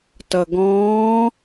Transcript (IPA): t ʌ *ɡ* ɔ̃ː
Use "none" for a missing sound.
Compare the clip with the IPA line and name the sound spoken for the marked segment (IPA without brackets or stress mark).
ɡ